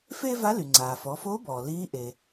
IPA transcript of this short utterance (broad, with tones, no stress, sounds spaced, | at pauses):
f eː˥ v a˧˥ l y˩ ŋ͡ǀ aː˩ f ɔ˩˧ f o˧˥ b ɔː˩ l iː˧˥ ʔ e˩